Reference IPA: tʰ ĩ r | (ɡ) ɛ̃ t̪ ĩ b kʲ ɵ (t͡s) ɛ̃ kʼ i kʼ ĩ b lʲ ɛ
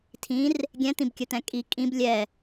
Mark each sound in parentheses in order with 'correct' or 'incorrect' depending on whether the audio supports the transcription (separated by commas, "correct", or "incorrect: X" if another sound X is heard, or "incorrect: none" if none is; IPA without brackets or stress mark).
incorrect: ɡʲ, incorrect: t̪